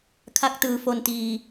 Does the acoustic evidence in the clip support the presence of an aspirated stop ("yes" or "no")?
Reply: yes